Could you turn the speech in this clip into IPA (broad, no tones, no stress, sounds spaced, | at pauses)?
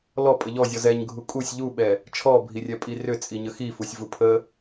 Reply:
l ɔ pʼ ə ʎ ɔ zʲ ɔ z ɛ ɲ ɡʱ u kʼ u sʲ ʎ u ɓ ɛ | t͡ʃʰ ɔ bʱ i rʲ ɛ pʼ i r ʏ t͡sʼ i ɲ ə x i f u sʲ v u pʰ ə